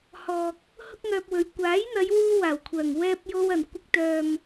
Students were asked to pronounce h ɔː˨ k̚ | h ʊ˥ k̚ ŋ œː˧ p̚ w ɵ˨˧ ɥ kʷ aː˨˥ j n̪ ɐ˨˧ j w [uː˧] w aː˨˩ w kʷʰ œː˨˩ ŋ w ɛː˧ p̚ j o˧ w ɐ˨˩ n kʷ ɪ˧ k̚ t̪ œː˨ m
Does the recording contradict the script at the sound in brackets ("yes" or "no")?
yes